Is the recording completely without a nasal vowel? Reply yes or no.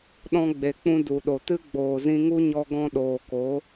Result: no